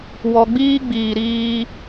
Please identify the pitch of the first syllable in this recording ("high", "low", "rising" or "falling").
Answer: low